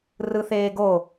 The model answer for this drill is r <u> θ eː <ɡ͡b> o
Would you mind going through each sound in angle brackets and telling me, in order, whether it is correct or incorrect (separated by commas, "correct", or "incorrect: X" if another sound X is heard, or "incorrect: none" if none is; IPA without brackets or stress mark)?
incorrect: ɯ, incorrect: ɡ